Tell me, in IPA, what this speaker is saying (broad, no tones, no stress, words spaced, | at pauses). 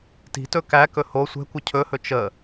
ti̤tɵ kækɵ ho sʷɛ̤kʷə cʰɵhɵ t͡ʃə